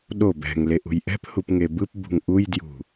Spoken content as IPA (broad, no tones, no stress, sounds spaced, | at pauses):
ɗ o b ɛ̤ ŋ l e ʔ ṳ j ʔ ɛ̤ p h u p ŋ e b ɯ p b ṳ ŋ ʔ u j d j ṳ